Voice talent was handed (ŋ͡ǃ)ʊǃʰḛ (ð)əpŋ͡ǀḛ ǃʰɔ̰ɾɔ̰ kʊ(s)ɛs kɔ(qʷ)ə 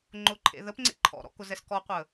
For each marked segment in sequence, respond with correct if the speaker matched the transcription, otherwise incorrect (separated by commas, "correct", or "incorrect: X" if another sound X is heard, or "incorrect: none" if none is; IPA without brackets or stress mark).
correct, correct, incorrect: z, correct